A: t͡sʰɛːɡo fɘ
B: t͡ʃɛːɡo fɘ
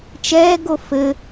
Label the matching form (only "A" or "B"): B